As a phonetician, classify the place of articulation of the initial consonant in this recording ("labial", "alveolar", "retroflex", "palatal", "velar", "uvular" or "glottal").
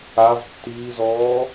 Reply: labial